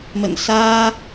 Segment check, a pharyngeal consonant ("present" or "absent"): absent